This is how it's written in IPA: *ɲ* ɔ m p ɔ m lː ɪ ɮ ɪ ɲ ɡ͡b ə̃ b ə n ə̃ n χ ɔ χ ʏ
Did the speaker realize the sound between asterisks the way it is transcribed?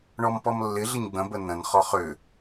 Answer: no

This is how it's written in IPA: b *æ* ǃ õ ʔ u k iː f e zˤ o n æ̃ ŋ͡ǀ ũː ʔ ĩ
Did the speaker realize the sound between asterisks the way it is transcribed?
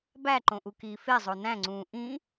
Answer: yes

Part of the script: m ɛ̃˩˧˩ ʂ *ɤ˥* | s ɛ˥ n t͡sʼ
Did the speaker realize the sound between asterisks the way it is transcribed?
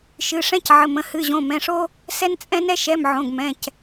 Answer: no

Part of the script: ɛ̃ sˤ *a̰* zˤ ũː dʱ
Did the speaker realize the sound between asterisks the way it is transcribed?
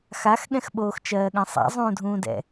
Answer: yes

